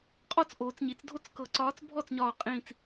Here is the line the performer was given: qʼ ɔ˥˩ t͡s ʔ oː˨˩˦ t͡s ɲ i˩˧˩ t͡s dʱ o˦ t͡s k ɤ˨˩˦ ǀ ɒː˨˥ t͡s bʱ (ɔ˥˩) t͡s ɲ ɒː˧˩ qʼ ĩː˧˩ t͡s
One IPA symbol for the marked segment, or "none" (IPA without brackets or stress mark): ɔ˥˩